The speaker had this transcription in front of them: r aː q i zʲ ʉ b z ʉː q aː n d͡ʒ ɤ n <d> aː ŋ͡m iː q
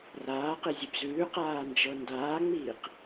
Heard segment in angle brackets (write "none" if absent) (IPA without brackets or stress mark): d